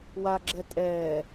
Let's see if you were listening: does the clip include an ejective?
yes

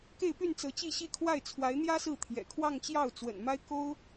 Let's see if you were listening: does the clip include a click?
no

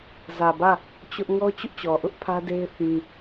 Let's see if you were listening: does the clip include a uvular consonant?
no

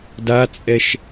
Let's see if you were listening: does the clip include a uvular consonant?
no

